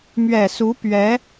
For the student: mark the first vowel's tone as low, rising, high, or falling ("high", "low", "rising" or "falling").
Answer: low